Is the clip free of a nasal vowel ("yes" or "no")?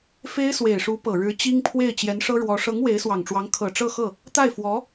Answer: yes